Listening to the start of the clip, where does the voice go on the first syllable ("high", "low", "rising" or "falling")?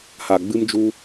low